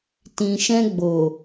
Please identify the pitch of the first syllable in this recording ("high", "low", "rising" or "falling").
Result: low